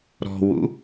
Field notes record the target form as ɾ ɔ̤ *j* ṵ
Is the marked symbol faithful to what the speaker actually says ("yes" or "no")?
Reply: no